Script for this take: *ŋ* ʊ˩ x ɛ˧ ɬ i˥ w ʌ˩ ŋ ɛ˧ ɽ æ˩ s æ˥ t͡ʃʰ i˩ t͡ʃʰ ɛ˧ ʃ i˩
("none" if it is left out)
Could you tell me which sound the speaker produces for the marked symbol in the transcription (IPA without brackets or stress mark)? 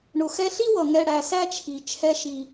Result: ɳ